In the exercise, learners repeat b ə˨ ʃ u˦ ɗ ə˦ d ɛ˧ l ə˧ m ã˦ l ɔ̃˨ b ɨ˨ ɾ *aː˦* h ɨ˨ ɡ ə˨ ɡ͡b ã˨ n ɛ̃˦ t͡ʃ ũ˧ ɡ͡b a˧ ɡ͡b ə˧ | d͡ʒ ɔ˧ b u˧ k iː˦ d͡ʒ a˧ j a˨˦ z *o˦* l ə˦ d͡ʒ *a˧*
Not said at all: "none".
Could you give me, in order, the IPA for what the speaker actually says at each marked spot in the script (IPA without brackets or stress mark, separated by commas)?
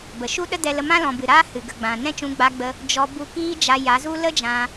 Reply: aː˦, u˦, ã˧